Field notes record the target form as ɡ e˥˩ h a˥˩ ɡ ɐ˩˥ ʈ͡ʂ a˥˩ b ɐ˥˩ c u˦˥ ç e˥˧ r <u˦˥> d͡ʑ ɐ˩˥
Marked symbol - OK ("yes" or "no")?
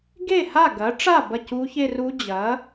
yes